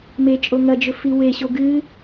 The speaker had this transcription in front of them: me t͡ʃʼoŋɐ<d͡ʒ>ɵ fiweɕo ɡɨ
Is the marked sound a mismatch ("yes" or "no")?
no